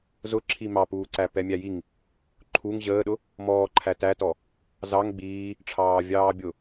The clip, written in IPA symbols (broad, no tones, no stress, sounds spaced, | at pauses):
z ʊ ǁʰ i m ɑ p uː ǀ æ p ɛ mʲ æ j i ŋ | ǃʰ u ŋ ʑ əː ɗ ʊ | m ɔː ǃʰ æ t æ t ɔ | z ɑ ŋ ɡ͡b iː | ʈ͡ʂʰ ɑː vʲ ɑː bʲ ʊ